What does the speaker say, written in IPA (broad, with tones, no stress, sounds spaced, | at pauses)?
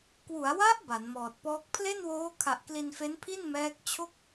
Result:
k w u˩˦ a̯ w a˦˥ ʔ b a˩˦ n m ɔː˨˩ t̚ p ɔː˦˥ k̚ pʰ l e˥˩ n w oː˦˥ kʰ a˨˩ ʔ k l i˧ n f e˦˥ n pʰ i˥˩ n m ɛː˦˥ k̚ t͡ɕʰ o˥˩ k̚